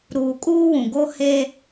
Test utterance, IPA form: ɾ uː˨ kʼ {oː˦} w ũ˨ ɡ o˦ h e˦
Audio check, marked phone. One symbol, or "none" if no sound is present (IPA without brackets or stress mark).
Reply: uː˦